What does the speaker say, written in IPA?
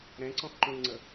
ɾ ɛ̃ ǀ ɔ̃ x ǃ ũ l ŋ͡ǀ ə

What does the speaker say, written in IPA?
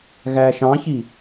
ɣ æ ʃ ɑ̃ ç i

